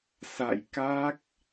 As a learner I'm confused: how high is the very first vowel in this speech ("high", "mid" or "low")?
low